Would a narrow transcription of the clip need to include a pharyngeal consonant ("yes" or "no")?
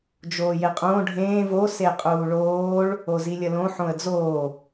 yes